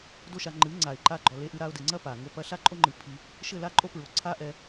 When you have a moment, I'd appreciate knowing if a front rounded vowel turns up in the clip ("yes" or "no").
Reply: no